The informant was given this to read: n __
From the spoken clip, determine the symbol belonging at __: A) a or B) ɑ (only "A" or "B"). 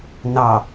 B